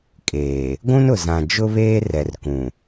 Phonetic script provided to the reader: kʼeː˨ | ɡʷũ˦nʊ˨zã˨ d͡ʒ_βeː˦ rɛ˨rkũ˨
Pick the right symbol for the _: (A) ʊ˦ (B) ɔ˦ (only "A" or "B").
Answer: A